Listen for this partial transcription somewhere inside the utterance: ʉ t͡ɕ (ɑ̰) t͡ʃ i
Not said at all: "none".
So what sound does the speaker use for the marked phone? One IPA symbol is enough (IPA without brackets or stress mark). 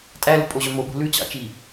ɑ̰